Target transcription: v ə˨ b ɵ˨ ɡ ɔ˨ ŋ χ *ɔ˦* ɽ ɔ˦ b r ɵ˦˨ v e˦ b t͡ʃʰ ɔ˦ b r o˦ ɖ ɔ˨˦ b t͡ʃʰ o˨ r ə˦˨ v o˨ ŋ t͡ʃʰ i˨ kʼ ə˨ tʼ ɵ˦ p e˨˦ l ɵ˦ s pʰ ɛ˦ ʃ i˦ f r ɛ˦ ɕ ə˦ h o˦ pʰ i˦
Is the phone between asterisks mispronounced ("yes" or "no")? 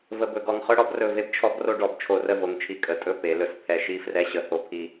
yes